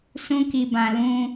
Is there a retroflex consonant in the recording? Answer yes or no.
no